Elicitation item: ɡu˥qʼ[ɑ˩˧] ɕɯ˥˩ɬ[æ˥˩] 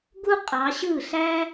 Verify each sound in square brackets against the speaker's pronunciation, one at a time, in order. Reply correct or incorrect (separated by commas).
correct, incorrect